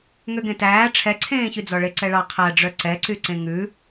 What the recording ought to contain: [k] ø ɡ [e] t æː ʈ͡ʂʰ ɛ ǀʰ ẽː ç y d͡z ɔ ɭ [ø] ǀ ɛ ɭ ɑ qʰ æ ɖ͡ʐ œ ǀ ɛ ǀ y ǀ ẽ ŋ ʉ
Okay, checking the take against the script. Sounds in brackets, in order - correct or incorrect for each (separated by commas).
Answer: incorrect, incorrect, incorrect